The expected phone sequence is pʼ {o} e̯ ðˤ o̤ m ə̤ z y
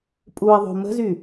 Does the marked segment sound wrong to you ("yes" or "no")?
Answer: yes